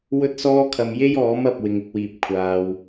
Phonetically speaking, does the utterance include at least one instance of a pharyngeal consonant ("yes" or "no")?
no